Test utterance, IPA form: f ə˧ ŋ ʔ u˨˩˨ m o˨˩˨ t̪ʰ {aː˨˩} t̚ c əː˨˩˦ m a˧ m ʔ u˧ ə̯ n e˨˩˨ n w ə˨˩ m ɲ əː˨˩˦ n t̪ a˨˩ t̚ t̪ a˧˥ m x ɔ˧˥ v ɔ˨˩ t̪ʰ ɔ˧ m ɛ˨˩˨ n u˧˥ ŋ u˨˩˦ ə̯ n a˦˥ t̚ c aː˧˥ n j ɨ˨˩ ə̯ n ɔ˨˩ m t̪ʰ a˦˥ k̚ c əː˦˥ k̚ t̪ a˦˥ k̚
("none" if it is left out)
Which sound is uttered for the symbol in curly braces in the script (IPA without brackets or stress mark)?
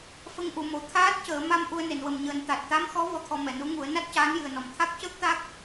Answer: aː˦˥